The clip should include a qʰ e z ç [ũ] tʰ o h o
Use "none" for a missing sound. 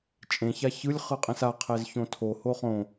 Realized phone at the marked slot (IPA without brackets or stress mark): õ